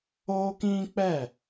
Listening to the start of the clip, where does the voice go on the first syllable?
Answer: high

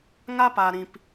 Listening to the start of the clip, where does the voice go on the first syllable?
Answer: high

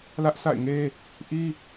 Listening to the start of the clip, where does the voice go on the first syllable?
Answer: high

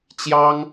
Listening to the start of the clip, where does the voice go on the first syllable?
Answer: high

